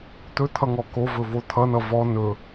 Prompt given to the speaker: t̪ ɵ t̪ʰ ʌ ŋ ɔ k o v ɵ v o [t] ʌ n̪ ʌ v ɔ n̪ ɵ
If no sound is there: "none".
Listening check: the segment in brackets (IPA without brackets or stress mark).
t̪ʰ